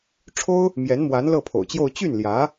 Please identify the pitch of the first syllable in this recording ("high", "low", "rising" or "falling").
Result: high